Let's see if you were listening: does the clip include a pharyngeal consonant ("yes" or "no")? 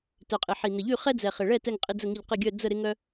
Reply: yes